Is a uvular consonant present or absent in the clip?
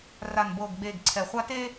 present